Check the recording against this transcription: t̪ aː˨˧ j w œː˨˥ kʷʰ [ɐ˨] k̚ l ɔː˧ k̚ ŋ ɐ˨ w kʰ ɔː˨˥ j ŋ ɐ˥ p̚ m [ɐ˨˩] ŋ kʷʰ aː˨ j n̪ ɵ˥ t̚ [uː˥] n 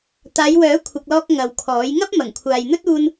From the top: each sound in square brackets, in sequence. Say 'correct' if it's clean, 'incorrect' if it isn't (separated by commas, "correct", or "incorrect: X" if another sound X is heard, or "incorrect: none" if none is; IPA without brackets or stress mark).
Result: correct, correct, incorrect: uː˧